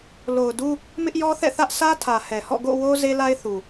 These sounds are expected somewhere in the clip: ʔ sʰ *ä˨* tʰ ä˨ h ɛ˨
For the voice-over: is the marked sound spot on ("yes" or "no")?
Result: no